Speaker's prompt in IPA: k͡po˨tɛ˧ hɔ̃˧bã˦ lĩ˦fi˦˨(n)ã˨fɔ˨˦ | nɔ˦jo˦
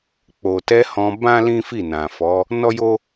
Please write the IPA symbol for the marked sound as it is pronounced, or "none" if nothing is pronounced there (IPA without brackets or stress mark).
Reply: n